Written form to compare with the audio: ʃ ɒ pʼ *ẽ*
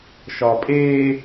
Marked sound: incorrect: e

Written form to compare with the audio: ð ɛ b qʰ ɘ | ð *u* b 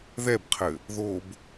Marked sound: incorrect: o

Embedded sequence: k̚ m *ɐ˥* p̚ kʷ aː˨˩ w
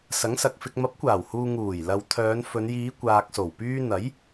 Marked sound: incorrect: ɐ˨˥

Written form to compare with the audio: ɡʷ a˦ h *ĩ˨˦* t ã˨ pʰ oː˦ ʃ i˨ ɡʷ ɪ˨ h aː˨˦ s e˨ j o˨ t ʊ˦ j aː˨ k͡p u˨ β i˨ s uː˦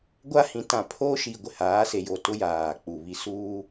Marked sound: correct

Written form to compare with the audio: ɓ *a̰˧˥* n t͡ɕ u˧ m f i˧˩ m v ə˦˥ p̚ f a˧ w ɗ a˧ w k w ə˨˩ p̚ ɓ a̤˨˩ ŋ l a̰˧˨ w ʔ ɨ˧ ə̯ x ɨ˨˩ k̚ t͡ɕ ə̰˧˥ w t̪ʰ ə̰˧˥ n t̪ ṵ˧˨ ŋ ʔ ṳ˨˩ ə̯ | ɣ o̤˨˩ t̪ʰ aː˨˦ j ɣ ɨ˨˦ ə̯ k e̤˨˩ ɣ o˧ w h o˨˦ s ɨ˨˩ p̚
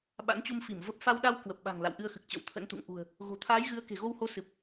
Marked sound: correct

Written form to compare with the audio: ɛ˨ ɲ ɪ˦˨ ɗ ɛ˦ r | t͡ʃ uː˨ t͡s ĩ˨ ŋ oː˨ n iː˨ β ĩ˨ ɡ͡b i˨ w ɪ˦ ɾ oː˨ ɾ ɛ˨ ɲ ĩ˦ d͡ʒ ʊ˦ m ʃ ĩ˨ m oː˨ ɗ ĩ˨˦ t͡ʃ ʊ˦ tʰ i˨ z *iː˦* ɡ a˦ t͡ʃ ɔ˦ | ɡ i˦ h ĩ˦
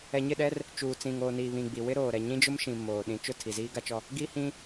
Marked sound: correct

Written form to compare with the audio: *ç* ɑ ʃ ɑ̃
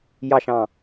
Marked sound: incorrect: j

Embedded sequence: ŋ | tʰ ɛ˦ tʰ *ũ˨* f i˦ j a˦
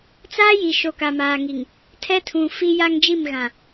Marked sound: correct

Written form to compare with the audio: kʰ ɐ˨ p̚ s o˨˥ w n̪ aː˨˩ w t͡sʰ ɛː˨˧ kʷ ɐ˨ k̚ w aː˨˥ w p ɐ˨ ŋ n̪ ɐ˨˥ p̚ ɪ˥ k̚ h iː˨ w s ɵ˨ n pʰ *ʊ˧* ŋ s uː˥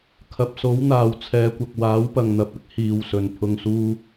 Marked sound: correct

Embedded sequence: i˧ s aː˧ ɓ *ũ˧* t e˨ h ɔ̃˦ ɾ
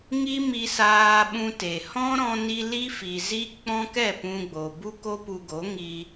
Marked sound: correct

